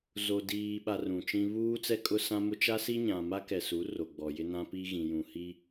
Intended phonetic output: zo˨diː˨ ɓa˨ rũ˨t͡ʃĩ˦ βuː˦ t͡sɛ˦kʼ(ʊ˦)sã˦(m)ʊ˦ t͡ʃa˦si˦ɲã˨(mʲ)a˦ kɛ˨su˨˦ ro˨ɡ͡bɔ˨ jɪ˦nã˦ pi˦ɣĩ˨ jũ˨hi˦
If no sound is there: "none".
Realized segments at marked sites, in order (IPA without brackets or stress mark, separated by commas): ʊ˦, m, m